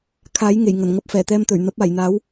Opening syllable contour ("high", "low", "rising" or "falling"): rising